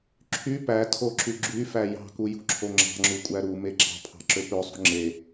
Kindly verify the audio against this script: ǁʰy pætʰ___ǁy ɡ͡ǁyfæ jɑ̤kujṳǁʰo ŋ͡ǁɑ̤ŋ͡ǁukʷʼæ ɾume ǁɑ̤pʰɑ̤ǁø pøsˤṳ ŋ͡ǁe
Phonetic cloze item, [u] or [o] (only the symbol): o